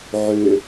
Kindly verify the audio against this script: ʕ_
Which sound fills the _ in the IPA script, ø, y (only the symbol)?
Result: ø